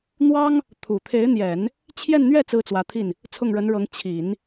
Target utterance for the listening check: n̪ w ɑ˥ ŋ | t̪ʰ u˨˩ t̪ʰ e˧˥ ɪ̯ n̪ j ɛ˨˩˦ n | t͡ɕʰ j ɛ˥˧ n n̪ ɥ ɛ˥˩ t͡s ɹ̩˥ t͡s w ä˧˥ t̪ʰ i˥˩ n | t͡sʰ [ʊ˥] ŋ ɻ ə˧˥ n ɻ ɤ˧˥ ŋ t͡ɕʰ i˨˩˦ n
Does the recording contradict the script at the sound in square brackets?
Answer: yes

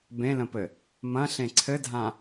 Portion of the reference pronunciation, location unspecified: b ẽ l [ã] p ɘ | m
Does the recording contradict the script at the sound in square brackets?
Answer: yes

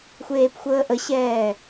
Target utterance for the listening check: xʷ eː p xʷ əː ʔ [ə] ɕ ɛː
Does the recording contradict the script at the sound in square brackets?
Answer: no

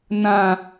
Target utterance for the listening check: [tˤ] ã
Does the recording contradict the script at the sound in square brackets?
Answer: yes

